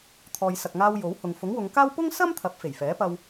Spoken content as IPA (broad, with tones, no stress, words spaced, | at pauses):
t̪ʰɔː˨jsɐ˨k̚ŋaː˧w jo˨˥w hʊ˨ŋ fʊ˨˥ŋwʊ˨˧ŋkaː˥w pʊ˥ŋsɐ˥m t̪ʰɐ˨˥p̚ fe˨˩jfɛː˨˥pɐ˧w